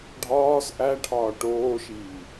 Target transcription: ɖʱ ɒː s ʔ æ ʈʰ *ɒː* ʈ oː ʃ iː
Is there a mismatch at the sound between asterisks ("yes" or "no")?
no